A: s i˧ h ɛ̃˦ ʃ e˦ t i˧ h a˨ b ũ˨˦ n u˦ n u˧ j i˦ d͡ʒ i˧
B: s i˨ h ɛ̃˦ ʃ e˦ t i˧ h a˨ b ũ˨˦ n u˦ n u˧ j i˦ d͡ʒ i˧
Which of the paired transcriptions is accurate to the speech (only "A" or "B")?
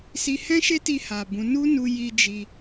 A